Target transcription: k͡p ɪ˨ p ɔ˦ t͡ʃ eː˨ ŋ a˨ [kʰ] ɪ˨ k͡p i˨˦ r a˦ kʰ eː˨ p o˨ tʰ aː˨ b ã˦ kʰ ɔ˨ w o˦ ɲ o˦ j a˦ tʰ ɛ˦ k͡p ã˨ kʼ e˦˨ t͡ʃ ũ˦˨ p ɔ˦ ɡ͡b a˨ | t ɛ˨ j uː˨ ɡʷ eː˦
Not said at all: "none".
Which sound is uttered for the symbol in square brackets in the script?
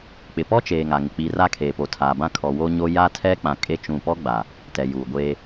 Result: ŋ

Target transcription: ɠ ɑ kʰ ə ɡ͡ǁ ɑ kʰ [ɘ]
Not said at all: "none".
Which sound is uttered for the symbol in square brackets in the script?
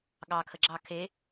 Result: e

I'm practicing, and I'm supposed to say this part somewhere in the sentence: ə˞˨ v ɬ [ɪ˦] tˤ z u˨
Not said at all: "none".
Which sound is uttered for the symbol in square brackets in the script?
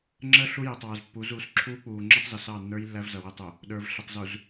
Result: ɪ˨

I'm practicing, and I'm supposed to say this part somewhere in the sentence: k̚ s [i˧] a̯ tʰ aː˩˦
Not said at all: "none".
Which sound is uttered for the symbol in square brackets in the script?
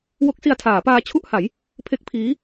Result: i˧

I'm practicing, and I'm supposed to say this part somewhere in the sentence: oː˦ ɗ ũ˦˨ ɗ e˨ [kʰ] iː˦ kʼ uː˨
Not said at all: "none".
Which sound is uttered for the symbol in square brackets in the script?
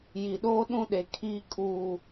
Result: kʰ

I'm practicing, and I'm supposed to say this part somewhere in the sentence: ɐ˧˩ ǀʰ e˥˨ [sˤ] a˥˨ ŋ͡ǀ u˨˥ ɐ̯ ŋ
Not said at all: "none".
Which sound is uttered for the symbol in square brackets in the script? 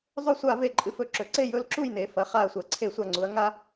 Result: sʷ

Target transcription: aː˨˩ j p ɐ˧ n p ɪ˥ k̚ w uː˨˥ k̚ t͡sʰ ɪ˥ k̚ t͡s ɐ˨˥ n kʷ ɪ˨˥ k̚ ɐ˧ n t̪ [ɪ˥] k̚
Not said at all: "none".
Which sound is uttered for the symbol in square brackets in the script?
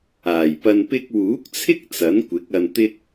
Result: ɪ˥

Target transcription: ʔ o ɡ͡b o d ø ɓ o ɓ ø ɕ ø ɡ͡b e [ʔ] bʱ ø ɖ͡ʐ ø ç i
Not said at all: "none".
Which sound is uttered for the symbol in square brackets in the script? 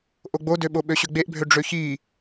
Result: ʔ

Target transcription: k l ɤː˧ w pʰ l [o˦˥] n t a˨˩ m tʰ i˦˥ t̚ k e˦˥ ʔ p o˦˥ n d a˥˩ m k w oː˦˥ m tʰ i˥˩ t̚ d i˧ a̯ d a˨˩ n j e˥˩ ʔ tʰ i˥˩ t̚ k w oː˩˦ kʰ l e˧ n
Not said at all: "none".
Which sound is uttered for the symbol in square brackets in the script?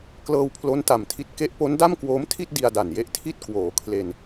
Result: o˦˥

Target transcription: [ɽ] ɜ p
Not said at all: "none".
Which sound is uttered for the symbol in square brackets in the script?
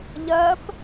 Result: ʎ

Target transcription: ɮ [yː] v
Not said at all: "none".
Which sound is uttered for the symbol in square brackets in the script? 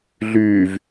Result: yː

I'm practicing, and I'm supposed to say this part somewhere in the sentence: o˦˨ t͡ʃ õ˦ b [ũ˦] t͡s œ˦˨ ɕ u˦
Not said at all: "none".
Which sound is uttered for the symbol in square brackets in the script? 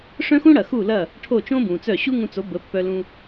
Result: ũ˨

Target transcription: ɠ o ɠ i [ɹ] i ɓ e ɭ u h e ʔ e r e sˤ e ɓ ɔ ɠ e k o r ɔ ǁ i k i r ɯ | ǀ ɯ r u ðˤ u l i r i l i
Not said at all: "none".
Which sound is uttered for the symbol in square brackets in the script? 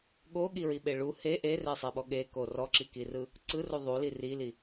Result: ɹ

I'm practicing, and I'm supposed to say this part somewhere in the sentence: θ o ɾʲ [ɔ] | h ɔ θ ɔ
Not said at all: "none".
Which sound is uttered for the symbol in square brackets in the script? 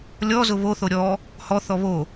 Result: ɔ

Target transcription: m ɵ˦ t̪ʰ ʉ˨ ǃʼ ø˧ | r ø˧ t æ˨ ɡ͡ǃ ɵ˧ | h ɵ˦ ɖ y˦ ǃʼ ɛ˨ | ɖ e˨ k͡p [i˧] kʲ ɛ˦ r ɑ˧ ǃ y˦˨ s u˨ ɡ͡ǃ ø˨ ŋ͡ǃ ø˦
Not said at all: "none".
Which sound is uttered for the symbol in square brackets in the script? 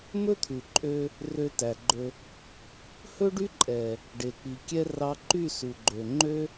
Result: i˨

